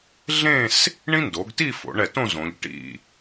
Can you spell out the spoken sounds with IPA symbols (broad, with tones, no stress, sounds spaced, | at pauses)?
ɮ ẽ˥˧ s | ɳ ĩ˥ n d o˩˧ ɡ t i˥˧ f o̰˩˧ ɳ ɛ˧˩ t õ˥˧ z õ˩˧ ʎ ʈ ḭ˧˩